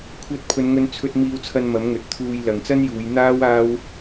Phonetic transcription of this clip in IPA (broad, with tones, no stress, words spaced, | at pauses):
kʷʰɐ˧t̚pʰɵ˨˧nŋɵ˧n t͡sʰɵ˧t̚ miː˧wt͡sʰɐ˧n mɐ˨˥mŋɵ˨t̚t̪ʰuː˧j lɐ˨ŋt͡sɐ˥njuː˨˧j n̪aː˥w aː˥w